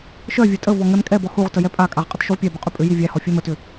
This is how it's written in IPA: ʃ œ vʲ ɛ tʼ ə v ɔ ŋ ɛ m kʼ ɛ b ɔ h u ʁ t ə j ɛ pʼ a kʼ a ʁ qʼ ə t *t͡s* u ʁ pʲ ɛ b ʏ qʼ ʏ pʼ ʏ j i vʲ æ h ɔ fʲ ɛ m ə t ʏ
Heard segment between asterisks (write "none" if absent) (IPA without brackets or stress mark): ʃ